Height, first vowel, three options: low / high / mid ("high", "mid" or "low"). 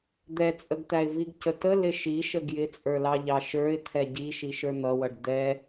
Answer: mid